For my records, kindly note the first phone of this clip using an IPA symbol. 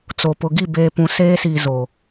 t͡s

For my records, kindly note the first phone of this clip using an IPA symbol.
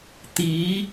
t̪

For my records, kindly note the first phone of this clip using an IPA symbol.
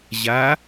ʑ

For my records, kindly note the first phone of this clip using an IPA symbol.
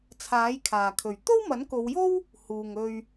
t͡sʰ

